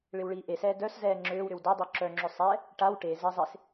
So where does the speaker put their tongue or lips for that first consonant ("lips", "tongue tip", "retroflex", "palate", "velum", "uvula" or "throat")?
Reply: retroflex